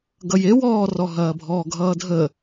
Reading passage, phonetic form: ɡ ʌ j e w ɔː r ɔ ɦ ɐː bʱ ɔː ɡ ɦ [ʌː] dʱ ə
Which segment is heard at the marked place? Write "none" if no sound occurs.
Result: ʌː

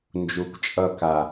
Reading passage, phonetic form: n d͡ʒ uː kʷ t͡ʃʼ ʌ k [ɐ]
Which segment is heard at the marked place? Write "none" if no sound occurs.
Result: a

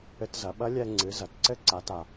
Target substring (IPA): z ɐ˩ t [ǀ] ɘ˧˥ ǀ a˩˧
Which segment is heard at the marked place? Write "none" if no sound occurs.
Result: ǀ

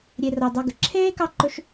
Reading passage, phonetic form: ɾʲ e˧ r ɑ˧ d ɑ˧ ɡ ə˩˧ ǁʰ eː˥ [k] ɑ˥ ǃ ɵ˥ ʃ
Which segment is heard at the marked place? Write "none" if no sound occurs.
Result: k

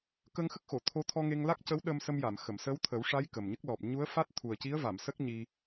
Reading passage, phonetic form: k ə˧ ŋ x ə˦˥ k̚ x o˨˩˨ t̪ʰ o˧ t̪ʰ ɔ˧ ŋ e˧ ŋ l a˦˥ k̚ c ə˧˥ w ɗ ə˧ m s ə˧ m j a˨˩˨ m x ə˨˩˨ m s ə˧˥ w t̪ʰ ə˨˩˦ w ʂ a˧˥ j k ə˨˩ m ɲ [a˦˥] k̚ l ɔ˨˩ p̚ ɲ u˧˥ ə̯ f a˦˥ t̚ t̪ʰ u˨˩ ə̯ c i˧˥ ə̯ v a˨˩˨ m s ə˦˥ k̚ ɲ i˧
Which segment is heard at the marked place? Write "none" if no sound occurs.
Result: ə˦˥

